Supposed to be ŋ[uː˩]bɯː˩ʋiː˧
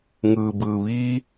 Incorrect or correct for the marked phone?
incorrect: ɯː˩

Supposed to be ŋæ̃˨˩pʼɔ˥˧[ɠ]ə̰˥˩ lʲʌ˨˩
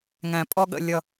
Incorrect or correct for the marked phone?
correct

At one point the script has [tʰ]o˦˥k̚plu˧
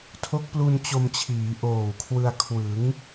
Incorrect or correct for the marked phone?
correct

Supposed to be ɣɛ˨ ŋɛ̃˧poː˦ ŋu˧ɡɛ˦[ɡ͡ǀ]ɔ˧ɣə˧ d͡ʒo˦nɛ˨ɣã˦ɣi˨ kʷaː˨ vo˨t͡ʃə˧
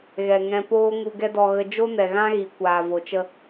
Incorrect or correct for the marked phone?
incorrect: d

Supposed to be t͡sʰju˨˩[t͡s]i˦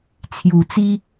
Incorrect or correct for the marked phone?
correct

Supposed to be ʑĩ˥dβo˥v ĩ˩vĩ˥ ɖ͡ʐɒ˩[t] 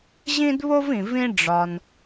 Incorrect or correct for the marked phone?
incorrect: n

